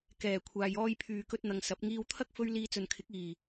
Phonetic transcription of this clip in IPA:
kɛː˨˩kʷʰaː˨j ɔː˧jpʰyː˨kɵ˧t̚n̪ɐ˨ŋ sɐ˨˥p̚ ŋiː˧wt̪ʰɐ˥k̚ fɵ˥ɥ liː˧t͡sɵ˨nkʰɪ˨˥k̚ iː˨˩

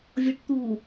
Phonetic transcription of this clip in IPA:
vʲɔʈt̪u

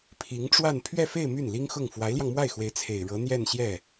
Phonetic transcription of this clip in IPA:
pʰi˧˥ŋʈ͡ʂwa˥˧n pʰɥɛ˥˧fe˥˧ɪ̯ my˥˩nli˥ŋxʊ˥˩ŋ fwa˧˥ɪ̯ljɑ˧ŋmwa˥˩ɪ̯xwe˧˥ɪ̯ t͡sʰe˨˩ɪ̯ɻɤ˧˥ n̪jɛ˥˧nɕjɛ˥˩

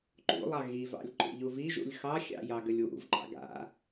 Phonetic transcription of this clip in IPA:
ǃṵlˠɑ ɣivɑ̰lʲ ǃṵʎuviʒṵlʲ xɑxʲɑ̰ jɑɡəlʲwṵvǃɑ̰ ɡa̰

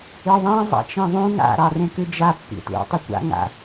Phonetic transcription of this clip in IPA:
ɨðˤɛ̃ zˤa̰t͡ʃẽðˤũ ŋa̰ ɾɑrẽkɨd͡ʒa pːḭtṵ tˤɘkʷa̰ ŋa̰

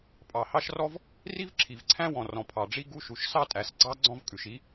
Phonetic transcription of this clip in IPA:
pʼɑ˩ hɑ˥ʃrɔ˥v | ri˥vǁʰi˩vǀʰæ̃˥wɔ̃˩ rɔ̃˩pʰɑ˩ɖ͡ʐi˥ ɡu˥ʃu˩ʃ sɑ˥tʼæ˩sɡ͡ǀɑ˥ ɡ͡ǀɔ̃˥vkʼʉ˩ʃi˥

